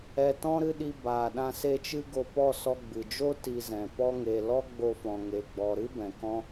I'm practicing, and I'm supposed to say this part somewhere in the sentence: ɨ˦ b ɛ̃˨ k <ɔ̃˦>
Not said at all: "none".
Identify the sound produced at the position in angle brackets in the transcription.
ɔ̃˦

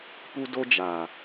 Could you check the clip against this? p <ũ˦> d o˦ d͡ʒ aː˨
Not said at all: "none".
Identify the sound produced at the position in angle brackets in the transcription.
u˦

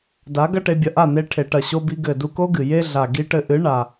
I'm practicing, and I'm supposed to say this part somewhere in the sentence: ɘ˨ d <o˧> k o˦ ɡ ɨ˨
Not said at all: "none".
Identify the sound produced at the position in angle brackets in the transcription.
u˧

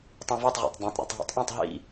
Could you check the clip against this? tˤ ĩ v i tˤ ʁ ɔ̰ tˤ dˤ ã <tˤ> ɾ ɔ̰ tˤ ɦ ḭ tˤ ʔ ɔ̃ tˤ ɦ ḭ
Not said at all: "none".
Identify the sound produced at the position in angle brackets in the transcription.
tˤ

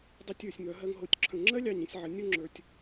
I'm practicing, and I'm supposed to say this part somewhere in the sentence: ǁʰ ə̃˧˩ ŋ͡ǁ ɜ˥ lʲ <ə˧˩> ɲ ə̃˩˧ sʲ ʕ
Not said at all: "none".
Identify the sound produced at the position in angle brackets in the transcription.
ɑ˧˩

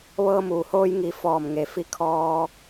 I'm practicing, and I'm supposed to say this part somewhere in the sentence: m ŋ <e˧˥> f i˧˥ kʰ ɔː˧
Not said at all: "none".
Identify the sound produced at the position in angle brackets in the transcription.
e˩˧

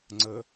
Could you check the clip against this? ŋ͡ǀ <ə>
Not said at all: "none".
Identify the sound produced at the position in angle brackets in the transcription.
ə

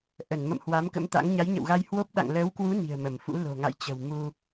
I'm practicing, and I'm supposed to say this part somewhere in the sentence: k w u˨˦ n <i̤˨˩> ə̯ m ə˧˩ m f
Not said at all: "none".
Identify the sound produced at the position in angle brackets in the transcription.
i̤˨˩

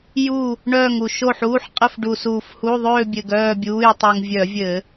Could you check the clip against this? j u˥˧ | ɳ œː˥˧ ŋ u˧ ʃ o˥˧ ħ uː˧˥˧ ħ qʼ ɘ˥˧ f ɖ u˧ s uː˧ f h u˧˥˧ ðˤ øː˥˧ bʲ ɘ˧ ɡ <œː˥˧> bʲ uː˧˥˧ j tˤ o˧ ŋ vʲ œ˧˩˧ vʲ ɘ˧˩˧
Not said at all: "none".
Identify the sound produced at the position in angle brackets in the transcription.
œː˥˧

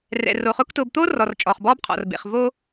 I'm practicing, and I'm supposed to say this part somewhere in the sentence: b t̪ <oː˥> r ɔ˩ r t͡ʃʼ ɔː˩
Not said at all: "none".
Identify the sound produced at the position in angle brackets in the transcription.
oː˥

